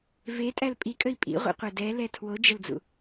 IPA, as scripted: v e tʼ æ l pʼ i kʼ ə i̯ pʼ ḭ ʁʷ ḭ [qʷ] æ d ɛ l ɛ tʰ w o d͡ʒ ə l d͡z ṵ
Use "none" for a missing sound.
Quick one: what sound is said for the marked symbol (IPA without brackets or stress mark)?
qʷ